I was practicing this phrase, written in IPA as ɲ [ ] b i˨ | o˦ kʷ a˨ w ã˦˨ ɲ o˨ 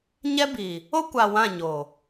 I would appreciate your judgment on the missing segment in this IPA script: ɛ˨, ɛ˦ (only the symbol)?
ɛ˦